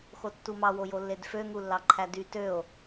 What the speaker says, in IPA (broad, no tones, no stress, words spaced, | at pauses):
xotːumɑ wojolːedfø ŋulːɑǃʰædy tøo̯